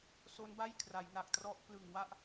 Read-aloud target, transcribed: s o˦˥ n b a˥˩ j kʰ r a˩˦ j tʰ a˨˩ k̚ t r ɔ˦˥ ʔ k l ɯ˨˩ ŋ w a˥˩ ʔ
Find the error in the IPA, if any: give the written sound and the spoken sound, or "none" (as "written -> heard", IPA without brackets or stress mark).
tʰ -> n